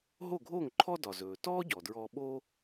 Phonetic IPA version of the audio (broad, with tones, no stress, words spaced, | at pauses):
ɦo˥˩ɡʱoː˥˩ŋ ǃʰɔ˥dɒ˩zɵː˩ tɔː˥ ɟɔ˩dɹɔː˧ɓo˥